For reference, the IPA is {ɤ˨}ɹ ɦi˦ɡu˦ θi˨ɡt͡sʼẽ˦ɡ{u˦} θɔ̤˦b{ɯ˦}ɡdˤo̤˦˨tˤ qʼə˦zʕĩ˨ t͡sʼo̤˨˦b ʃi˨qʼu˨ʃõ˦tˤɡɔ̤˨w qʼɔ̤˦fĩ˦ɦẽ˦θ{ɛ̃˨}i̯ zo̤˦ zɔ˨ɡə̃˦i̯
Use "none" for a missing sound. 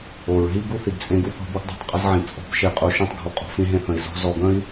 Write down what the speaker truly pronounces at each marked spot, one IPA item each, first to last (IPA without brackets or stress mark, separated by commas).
o˨, u˦, u˦, ə̃˨